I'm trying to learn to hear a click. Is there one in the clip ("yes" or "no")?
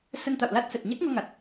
no